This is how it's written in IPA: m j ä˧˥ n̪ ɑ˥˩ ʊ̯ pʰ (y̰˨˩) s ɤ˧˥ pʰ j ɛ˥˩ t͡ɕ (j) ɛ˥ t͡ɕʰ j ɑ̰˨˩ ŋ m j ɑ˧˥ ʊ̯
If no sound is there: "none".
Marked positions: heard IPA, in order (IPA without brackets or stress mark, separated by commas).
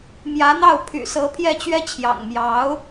y̰˨˩, ɥ